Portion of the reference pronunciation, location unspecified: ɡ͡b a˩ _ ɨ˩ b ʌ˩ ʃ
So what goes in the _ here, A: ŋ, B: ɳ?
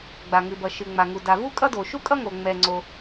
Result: A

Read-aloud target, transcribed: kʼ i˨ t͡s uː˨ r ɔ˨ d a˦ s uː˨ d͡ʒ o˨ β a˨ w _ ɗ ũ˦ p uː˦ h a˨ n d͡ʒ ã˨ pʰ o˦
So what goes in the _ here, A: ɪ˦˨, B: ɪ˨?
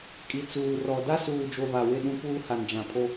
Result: A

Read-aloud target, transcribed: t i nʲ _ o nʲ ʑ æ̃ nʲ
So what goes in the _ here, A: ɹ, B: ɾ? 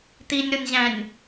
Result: B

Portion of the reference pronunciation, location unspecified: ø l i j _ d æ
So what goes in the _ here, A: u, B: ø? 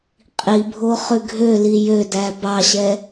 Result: B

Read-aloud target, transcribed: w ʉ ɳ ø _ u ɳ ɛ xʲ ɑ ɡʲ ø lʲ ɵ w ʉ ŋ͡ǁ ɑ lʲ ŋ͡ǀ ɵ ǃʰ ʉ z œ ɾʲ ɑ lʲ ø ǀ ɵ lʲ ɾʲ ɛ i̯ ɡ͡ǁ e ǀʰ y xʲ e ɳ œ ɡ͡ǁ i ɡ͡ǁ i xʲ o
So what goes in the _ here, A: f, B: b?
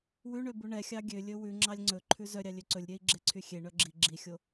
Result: B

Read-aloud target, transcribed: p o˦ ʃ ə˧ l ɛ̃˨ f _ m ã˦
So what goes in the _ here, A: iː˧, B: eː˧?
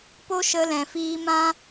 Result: A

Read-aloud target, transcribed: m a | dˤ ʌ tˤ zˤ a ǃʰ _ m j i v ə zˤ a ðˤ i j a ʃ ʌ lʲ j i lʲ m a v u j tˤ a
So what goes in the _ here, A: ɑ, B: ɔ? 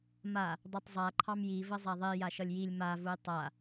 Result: A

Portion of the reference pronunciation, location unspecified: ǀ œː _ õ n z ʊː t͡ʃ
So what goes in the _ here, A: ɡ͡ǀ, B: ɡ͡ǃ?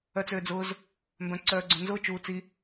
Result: A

